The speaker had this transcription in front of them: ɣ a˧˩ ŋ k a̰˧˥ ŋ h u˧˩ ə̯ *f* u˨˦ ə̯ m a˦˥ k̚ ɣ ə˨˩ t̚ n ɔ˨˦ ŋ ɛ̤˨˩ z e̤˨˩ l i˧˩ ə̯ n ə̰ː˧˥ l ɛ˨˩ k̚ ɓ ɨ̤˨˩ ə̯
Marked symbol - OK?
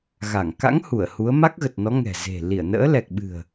no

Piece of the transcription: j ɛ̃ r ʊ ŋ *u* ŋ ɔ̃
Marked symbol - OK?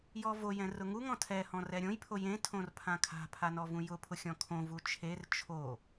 yes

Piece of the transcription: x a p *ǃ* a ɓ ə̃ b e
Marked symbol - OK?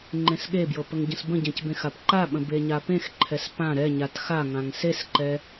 yes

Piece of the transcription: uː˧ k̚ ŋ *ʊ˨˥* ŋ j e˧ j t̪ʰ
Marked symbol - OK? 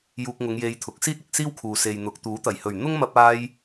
no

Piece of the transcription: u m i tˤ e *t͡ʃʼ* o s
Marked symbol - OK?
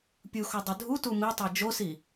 no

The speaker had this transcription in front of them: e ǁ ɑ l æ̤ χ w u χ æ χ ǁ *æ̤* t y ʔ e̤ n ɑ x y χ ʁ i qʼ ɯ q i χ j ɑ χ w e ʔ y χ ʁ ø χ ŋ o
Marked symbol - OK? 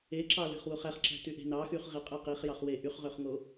yes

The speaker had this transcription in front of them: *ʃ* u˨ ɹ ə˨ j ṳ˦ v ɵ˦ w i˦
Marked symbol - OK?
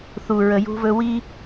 no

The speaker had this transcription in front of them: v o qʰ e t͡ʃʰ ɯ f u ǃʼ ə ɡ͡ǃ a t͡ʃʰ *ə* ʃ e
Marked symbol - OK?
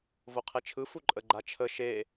yes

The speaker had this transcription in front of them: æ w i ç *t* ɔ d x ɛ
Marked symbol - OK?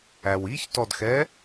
yes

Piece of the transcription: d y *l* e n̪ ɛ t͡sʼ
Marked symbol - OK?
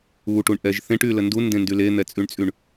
yes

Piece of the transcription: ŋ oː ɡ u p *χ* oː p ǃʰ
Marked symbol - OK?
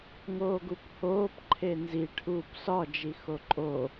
no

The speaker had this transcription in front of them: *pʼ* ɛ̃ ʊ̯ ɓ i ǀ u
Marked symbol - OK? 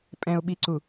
yes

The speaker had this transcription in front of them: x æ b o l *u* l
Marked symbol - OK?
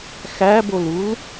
yes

